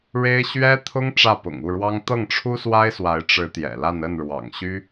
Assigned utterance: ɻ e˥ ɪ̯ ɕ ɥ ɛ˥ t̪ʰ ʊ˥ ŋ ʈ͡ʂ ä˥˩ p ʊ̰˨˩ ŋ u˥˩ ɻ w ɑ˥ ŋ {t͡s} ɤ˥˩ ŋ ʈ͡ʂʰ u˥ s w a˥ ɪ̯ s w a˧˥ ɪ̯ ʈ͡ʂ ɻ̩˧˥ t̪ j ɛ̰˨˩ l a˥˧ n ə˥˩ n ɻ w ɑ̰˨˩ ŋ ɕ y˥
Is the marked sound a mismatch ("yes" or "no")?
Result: yes